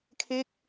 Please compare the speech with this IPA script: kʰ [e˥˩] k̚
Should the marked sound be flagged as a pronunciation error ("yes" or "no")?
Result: no